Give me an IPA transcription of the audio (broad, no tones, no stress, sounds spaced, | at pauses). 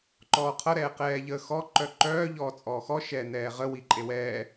ǃ ɔː qʰ ʌ ɾ ɛː q ɛː ʎ əː x ɔ ǃ œ ǃ œː ʎ ɔː t͡sʼ ɔː x ɔ ʃ ɛː n ɛː ʁ ə w i ǃʼ e w ɛː